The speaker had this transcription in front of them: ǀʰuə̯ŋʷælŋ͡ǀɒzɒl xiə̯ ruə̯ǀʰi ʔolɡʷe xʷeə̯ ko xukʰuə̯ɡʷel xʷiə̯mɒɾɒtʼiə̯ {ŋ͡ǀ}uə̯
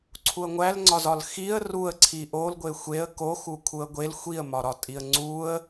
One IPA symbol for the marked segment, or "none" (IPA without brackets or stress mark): ŋ͡ǀ